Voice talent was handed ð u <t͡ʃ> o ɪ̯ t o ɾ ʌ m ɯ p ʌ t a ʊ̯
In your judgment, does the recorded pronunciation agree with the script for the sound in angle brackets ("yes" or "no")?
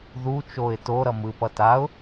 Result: yes